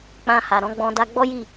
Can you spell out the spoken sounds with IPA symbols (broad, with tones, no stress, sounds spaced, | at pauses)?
k͡p ã˧ h a˨ ɾ ɔ̃˨˦ ɡ͡b ɔ̃˧ d a˦ ɡ͡b ɔ˦ j i˦˨